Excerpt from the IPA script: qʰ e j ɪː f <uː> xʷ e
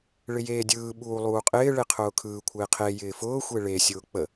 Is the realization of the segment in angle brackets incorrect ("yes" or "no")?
yes